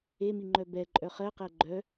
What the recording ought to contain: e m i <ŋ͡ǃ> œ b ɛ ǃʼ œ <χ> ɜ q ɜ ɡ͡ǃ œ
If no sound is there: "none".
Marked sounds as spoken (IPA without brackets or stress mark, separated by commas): ŋ͡ǃ, χ